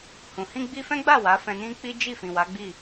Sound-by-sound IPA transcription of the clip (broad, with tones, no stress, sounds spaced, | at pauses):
h ũ˨ h ĩ˧ ɡ͡b i˧ f ɛ̃˦ ɡ͡b a˦˨ w a˨˦ f ɛ̃˧ n ĩ˦ k͡p i˦ d͡ʒ i˦˨ f ĩ˨ w a˨˦ ɡ͡b i˦˨